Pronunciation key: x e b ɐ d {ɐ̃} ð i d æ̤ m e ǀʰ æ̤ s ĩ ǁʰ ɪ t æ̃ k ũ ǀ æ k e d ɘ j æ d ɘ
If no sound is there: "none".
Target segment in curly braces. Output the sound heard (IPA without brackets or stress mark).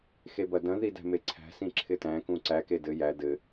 ɐ̃